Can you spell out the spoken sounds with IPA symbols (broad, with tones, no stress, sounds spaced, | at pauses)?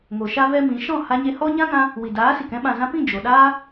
ŋ o˨ ʃ a˦ v ɛ˦ m ĩ˨˦ ʃ ɔ̃˦˨ h a˧ ɲ e˧ h ɔ˦ ɲ ã˦ ŋ ã˧ | w i˨ d aː˨˦ s i˨ k ɛ̃˦ ɓ ã˨ z ã˧ p ĩ˦˨ d͡ʒ o˨ ɗ aː˦